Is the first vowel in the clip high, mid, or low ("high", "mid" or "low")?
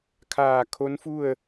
low